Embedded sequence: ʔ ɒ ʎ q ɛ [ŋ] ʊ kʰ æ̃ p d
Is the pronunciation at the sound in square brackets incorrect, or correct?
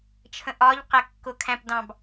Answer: incorrect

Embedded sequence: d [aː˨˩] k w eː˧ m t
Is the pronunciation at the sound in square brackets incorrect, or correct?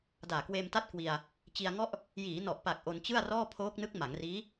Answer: correct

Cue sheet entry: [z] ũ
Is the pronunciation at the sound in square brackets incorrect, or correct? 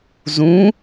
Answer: correct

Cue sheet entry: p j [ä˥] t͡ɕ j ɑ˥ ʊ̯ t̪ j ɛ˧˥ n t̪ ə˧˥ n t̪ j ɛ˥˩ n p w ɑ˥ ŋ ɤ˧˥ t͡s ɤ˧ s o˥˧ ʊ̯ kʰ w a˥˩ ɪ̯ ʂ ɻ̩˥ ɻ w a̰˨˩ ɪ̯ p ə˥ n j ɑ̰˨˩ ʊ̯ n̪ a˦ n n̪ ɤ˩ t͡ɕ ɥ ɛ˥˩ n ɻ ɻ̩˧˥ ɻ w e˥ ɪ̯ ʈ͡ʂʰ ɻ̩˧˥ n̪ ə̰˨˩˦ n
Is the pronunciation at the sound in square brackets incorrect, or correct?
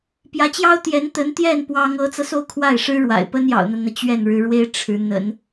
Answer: incorrect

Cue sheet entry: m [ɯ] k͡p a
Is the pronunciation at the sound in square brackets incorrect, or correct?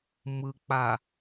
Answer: correct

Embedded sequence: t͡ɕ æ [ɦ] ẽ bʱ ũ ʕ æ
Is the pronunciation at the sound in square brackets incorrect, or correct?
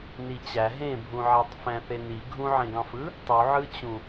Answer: correct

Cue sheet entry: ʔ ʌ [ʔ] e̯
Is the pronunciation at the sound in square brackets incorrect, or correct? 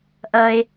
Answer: incorrect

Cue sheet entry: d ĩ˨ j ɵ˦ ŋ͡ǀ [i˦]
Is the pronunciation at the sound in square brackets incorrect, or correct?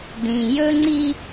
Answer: correct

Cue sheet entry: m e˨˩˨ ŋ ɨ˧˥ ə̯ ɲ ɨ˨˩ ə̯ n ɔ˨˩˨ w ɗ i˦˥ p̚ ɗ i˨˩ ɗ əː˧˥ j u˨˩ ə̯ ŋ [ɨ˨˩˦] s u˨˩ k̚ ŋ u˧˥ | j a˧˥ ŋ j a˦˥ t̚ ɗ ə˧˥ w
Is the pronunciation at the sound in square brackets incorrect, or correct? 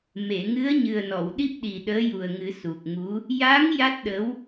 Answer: correct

